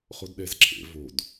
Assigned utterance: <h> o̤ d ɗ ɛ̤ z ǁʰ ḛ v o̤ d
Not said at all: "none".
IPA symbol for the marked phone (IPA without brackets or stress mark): χ